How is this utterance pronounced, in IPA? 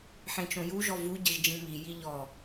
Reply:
ħ ẽ t͡ʃ õ j u ʒ ɔ v u ɟ ɘ ʒ d͡ʒ ĩ m i j i ʎ ɔ

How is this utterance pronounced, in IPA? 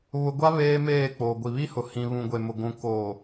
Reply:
β ʊ˦ ɡʷ a˦ β eː˦ m eː˦˨ k͡p oː˨ ɡʷ i˨ β i˦ h ʊ˨ h ĩ˨ β ũ˨ ɡʷ e˨ m ʊ˨ ɡʷ ũ˨ k oː˨

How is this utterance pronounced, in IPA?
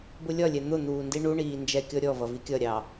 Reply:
b ʊ lʲ ɒ lʲ ɛ n̪ ʊ n̪ uː n d i ɳ u ɳ iː n d͡ʒ ɛ kʲ ɔ ɾʲ ɔ v ʌ v i kʲ ʌ ɾʲ ɑ

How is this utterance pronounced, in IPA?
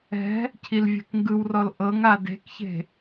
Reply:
ɛ̤ | cʰ i l vʲ ɛ̤ k ŋ ɡ ɯ w r ɔ l ʔ ɤ ŋ a d e̤ k ç e̤

